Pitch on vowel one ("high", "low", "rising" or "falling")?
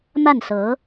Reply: falling